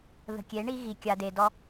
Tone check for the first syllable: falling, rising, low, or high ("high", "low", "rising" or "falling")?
low